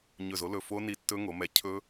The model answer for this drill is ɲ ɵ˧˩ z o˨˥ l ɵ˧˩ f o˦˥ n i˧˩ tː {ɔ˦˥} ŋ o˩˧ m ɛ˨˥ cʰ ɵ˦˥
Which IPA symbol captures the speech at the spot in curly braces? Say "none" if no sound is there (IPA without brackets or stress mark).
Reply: ɵ˦˥